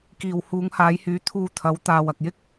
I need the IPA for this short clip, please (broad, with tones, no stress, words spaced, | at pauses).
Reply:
kiː˨whuː˨˧ŋhaː˨˧jhyː˨˥ t̪ʰuː˨ t̪ʰɐ˨˥w t̪aː˨wɐ˨k̚jɪ˥k̚